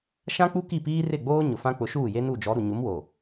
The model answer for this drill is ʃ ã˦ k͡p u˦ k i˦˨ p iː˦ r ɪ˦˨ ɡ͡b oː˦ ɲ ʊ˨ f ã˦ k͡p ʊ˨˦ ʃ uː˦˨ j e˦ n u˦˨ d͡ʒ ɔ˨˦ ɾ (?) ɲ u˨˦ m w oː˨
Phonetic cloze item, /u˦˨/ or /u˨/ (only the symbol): u˨